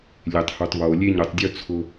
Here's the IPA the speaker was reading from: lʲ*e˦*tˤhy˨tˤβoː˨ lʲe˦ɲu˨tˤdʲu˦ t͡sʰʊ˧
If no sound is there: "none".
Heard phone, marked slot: e˨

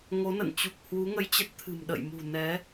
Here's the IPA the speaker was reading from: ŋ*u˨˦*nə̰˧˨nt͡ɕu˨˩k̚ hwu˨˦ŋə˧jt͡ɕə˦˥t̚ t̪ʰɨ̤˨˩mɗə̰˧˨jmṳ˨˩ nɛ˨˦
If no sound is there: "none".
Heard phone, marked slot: o˨˦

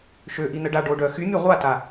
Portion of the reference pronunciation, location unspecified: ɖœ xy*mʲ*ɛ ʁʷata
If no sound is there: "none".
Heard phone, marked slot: mʲ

